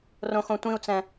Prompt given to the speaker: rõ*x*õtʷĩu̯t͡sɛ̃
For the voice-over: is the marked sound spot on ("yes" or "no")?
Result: yes